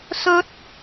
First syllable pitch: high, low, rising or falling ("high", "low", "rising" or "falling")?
rising